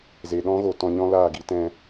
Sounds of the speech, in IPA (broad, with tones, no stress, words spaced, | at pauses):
ze˨ɗɔ̃˦ɣo˨ tɔ̃˧ɲɔ̃˦laː˦˨ɡi˧ tɛ̃˧